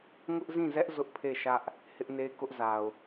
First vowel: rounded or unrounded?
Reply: rounded